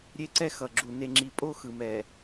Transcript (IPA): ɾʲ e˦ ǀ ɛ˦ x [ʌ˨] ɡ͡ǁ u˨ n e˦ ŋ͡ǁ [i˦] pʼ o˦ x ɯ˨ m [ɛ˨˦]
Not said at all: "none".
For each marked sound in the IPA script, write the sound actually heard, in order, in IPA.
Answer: ʌ˨, i˦, ɛ˨

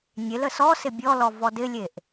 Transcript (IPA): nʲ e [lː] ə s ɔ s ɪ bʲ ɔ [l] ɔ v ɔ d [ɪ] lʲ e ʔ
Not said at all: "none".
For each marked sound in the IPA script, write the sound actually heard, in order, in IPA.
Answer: l, l, ɪ

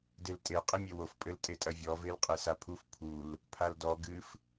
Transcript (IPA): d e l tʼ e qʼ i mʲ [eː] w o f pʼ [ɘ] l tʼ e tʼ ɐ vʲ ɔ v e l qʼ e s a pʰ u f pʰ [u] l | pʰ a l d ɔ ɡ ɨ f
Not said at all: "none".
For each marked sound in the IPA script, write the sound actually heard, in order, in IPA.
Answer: e, ɘ, u

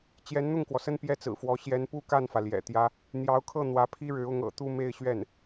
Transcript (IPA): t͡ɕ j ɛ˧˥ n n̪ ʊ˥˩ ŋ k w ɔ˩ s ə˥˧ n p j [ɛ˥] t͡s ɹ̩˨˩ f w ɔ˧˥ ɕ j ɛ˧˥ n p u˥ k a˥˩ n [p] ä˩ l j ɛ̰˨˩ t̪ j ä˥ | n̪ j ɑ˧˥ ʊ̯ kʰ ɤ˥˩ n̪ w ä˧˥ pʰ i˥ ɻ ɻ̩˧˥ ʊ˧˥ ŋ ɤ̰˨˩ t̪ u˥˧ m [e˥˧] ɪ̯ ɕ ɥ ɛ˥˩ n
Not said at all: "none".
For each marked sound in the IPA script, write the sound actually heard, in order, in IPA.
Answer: ɛ˥˩, f, e˥˧

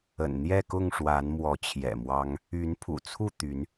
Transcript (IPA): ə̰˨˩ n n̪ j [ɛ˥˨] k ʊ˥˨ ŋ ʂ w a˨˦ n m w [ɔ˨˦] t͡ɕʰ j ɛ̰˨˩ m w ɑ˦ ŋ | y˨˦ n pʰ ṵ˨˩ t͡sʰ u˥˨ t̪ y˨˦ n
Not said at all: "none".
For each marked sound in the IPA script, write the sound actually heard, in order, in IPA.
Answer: ɛ˥˨, ɔ˨˦

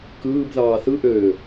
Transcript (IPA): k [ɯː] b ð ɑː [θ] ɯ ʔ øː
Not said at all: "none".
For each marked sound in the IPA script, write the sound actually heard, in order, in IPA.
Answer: ɯː, θ

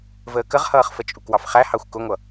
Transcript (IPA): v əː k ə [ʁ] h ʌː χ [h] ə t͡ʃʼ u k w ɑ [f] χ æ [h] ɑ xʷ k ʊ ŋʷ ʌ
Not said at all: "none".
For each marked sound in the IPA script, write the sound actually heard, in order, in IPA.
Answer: ʁ, f, f, h

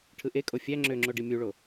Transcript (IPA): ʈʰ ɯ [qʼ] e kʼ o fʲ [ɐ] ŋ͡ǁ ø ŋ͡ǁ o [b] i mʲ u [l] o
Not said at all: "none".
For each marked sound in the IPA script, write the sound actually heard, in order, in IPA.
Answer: ʔ, æ, ɖ, ɭ

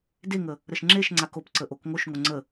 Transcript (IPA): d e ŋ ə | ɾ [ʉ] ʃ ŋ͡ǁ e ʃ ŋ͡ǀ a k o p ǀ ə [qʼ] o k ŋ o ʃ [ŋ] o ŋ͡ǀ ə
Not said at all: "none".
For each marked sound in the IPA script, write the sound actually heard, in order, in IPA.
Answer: ə, ʔ, ŋ

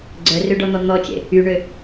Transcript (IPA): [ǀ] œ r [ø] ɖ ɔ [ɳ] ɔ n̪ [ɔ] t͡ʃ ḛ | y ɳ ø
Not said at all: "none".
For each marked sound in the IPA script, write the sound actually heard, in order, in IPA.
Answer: ɡ͡ǀ, ø, n̪, ɔ

